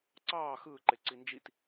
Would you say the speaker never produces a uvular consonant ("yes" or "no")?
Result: yes